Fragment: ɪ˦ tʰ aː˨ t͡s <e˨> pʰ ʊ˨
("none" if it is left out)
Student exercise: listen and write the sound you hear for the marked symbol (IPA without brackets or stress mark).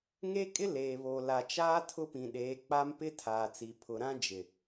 i˨